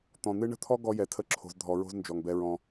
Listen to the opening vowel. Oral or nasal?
nasal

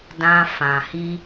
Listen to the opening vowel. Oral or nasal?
nasal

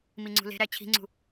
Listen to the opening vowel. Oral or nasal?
oral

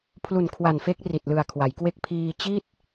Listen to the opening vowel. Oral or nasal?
oral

